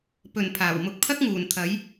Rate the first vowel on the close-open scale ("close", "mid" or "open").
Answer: mid